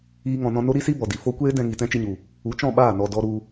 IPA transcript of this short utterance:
iː˦ ŋ ɔ̃˧ n ɔ̃˧ n o˦ ɾ i˦ s i˦ b ɔ˨ d i˨ f o˦ kʷ eː˦ d ɛ̃˧ ŋ i˨ t ɛ̃˦ t͡ʃ i˧ ɲ u˨ | u˨˦ t͡ʃ ɔ̃˦˨ ɓ aː˦˨ n ɔ˨ d ɔ˧ ɾ u˧

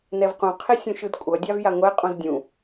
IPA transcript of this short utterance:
n ɛ v q ũ qʰ i sʲ ũ ʃ ɯ d kʷʼ ʌ dʲ a v j a ŋʷ ɛ qʼ ũ z dʲ ũ

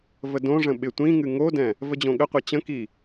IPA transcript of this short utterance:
v ə d õ ʐ ə̃ ɓ ɪ tʷ ĩ ŋ ɨ ŋ o d ɛ̃ | v ə d͡ʑ õ ɠ ə qʷ ɛ t͡ɕ ə̃ k i

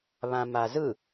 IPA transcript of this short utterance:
β ã m a z ɯ

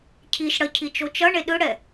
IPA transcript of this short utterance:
cʰ i ʃ ɽ ʌ cʰ i t͡ʃ o t͡ʃ ʌ ɳ e ɗ ɯ ɽ ɛ

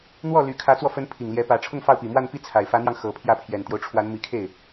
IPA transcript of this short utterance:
n̪ w ɔ˥˩ l y˧˥ kʰ ä˧˥ t͡s w ɔ˧ f ə˧˥ n pʰ i˨˩ ŋ l j ɛ˧˥ p ä˧˥ ʈ͡ʂʰ ʊ˥˧ ŋ f ɑ˥˩ ʊ̯ p i˨˩ m w a˥˧ n p i˥˩ t͡sʰ a˨˩ ɪ̯ f ä˧˥ n̪ j ɑ˧ ŋ x ɤ˧˥ pʰ j ä˥˩ pʰ j ɛ˨˩ n t̪ j o˦ ʊ̯ ʈ͡ʂʰ w a˧˥ n m i˧˥ kʰ e˥˩ ɪ̯

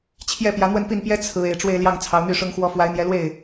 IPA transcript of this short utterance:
t͡ɕʰ j ɛ˥˩ p j ä˧˥ n̪ w ə˥˧ n p i˥˩ n p j ɛ˥ t͡sʰ ɹ̩˧˥ e˨˩ ɪ̯ ʈ͡ʂ w e˥˧ ɪ̯ l j ɑ˥˩ ŋ t͡sʰ ɑ˧˥ ʊ̯ n̪ y˥˩ ʂ ʊ˥ ŋ x w ɔ˥ f w a˧˥ ɪ̯ n̪ j ɛ˧˥ l w e˥˩ ɪ̯

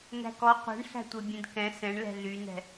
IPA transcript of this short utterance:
n æ̤ k ɔ qʷ ɛ̤ ɳ ɬ æ̤ tʷ e bʲ ẽ d k ɛ̃ s ɛ̃ ɳ l ɛ̤ ɮ y n ɛ̤

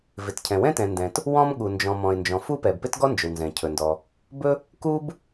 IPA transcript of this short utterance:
v ɪ˩ t cʰ ɛ̃˩ w ɛ̃˥ t ɛ̃˩ n d ɛ̃˩ t | w ɔ̃˥ m ɠ u˩ n d͡ʒ ɔ̃˩ m ɔ̃˩ ɪ̯ n d͡ʒ ɔ̃˩ f u˥ p ɛ˩ b p ɪ˥ t ɡ ɔ˥ n d͡ʒ ɵ˩ w n z ɛ̃˩ cʰ ɵ˩ n d ɔ˩ | b ɵ˥ | k u˥ b

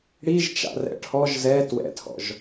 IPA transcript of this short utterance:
ɽ i ʒ t͡ʃ a̰ r ɛ̰ ʈʰ ɔ ʒ z ɛ t w ɛ̰ tʰ ɔ̰ ʒ

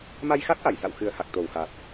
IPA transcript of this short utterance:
m a˧ j x a˦˥ t̚ ʔ a˧˩ j s a̰˧˨ w x ɨ˨˩ ə̯ h a˨˩ k̚ t̪ o˨˩ w x a˨˩ t̚

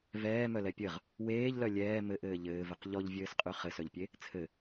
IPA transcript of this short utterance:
v ɛː m œ l ɛ pʲ ɘ ʁ | w eː ʎ l œ lʲ ɛː m ɘ ʔ ɘː ʎ ɘː v ɘ q ʎ ɔ ʎ vʲ ɘː s qʼ y χ ɘ s œ ʎ pʲ e | t͡sʰ ɘ

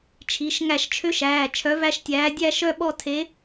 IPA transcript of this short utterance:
t͡ʃʰ i˩˧˩ ʃ ŋ æ˧˩˧ ʃ t͡ʃʰ ø˧˥ ʃ æː˩˧˩ t͡ʃʰ œ˧˥ v æ˥˧ ʃ tʲ æː˧˥ dʲ æ˥˧ ʃ œ˥˧ ɓ ɔ˥˧ tʰ e˧˥

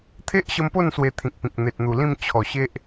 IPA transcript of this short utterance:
t̪ʰ e˦ ʔ ɕ ə˧ m p o˥˧ n s w e˧ t̪ʰ ĩ˨ k̚ p ĩ˨ k̚ n̪ e˨ t̚ n̪ u˨˩ l ĩ˥˧ m t͡ɕʰ ɔ˨˩ ɕ e˦ ʔ

